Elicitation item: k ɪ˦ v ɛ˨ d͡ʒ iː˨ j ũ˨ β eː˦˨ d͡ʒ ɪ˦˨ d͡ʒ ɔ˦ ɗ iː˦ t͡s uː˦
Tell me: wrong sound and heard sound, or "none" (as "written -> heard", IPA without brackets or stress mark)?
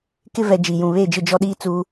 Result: none